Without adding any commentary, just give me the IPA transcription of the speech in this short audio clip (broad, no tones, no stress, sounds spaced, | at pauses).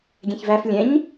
ɡʲ ɛ̃ ç v æ f lʲ ɛ̃ ɲ